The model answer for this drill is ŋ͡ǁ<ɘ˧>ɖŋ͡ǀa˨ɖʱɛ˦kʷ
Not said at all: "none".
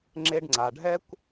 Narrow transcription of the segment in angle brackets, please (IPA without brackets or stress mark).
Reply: e˧